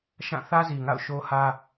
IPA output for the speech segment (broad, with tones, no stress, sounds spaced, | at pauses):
ʃ ã˦˨ θ ä˦ z i˨ ŋ a̰˦˨ ʊ̯ ʃ o˦ h ä˦